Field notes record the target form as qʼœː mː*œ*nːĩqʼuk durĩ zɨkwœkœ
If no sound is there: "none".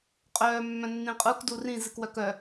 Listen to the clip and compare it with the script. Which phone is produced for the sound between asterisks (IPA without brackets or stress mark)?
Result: œ̃